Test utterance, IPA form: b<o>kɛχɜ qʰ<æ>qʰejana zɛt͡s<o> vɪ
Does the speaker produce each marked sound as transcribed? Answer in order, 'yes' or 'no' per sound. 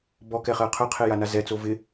no, no, yes

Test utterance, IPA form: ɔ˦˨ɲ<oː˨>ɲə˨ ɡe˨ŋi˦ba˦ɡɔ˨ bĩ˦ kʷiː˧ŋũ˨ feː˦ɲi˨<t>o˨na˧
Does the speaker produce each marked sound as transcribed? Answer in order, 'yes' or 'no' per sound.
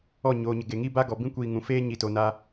yes, yes

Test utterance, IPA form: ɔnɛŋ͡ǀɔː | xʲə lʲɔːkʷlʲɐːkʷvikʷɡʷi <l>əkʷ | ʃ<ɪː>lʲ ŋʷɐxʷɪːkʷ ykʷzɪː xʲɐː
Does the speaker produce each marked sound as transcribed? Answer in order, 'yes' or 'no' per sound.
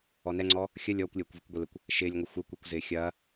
yes, yes

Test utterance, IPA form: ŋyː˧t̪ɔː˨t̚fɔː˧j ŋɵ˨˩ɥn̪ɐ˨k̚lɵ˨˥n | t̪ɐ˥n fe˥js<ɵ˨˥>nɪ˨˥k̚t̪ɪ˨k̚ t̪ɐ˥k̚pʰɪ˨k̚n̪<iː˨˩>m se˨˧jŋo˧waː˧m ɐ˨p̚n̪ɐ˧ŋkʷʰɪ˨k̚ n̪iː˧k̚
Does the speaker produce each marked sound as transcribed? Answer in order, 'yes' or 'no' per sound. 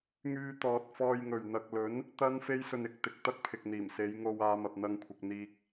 no, yes

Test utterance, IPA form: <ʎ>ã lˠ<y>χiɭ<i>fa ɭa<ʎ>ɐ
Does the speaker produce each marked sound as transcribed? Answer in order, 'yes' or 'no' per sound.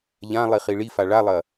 yes, no, yes, no

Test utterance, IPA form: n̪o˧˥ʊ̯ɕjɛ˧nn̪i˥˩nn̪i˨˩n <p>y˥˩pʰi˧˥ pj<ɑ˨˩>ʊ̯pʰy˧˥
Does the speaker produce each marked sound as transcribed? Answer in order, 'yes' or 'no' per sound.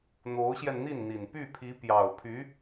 yes, yes

